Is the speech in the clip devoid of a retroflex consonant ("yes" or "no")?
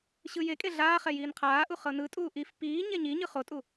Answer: yes